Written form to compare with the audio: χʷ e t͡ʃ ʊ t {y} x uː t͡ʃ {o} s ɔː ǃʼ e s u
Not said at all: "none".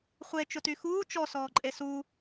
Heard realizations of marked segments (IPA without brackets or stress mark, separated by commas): y, ɔ